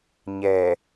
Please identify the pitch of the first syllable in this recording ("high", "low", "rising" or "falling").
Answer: low